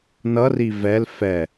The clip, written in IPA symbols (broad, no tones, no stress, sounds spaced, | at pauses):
n ʌ r i v ɛ l f ɛ